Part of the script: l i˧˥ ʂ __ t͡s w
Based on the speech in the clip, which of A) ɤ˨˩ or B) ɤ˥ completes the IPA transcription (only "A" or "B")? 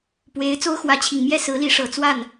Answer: A